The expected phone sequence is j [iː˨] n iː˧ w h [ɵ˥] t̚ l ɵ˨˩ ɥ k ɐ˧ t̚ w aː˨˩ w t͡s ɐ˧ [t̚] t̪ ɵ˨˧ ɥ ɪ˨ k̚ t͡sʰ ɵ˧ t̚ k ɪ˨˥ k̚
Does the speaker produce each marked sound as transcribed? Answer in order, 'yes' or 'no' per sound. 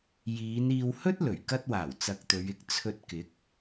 no, yes, no

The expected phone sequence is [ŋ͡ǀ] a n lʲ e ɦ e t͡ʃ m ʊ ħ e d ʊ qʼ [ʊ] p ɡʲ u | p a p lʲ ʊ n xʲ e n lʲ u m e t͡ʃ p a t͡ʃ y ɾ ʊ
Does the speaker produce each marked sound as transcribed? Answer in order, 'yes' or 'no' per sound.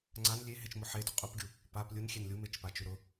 yes, no

